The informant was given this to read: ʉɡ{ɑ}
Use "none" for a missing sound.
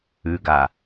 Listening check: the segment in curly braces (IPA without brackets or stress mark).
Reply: a